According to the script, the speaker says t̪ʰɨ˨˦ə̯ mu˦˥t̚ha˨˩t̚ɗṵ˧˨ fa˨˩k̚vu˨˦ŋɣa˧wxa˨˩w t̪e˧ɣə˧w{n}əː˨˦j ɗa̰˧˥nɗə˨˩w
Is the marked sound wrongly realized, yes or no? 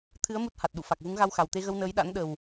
no